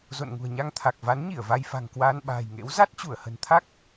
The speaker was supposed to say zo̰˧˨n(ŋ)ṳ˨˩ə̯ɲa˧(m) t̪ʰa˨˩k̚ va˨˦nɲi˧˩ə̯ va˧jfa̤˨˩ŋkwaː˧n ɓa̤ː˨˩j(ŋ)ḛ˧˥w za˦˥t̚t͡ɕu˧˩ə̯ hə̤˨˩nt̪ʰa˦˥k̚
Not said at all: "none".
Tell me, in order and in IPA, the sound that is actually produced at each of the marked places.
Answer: ŋ, ŋ, ŋ

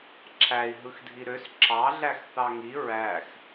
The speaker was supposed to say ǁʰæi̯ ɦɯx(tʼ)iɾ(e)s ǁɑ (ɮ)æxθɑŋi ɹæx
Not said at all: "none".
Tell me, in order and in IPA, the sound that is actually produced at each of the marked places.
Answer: dʱ, ø, ɮ

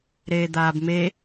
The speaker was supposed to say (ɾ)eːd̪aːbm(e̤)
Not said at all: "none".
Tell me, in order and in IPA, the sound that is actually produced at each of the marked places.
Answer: ɾ, e

